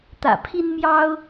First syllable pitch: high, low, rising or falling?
low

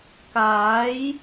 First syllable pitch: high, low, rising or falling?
rising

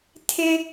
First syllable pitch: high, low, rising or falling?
high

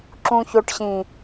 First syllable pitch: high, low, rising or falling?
low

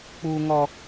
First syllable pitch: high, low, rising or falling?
high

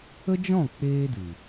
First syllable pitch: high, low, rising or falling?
high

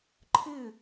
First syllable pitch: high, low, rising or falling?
falling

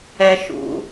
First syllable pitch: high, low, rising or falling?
high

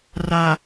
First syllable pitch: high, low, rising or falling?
low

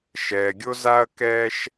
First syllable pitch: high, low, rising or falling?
low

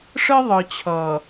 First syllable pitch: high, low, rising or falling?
high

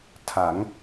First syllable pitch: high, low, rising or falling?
rising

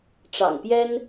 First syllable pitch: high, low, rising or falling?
low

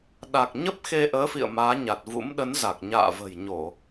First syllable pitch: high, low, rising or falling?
low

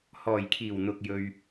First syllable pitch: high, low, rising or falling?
low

